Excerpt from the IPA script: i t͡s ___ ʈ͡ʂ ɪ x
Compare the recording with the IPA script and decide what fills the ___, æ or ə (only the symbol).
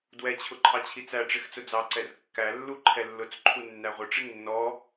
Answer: æ